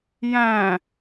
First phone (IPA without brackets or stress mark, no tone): j